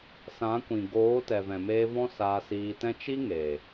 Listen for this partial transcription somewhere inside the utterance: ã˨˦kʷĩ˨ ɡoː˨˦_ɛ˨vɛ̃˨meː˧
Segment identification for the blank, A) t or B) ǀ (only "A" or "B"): A